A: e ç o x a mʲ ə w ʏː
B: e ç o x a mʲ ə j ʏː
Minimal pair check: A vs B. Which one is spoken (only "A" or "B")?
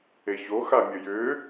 B